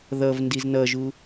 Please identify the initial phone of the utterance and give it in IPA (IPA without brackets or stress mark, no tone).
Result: ð